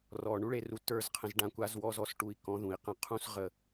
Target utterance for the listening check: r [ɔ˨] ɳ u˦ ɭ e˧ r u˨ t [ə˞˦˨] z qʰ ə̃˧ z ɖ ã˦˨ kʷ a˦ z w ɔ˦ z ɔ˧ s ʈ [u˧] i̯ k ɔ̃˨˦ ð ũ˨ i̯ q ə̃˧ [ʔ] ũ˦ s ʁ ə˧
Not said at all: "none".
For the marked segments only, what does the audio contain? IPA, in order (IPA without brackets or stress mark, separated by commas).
ɔ˨, ə˞˦˨, u˧, qʰ